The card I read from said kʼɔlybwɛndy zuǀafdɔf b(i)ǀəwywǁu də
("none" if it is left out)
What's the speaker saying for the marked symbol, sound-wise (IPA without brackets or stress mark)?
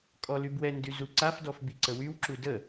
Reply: i